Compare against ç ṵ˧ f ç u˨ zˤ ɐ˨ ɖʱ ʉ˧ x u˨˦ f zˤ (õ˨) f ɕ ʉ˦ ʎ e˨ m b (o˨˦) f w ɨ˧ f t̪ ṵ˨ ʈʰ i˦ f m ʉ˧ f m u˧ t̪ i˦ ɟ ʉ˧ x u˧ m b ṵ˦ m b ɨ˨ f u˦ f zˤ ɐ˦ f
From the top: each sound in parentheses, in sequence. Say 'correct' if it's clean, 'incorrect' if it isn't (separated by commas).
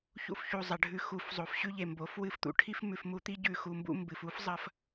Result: incorrect, correct